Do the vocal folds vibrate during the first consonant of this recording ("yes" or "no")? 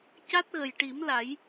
no